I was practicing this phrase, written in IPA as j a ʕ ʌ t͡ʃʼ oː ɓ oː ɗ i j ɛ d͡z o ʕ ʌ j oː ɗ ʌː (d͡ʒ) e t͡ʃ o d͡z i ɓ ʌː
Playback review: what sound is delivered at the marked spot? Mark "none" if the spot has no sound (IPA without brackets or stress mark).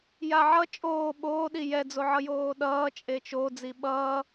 t͡ʃʼ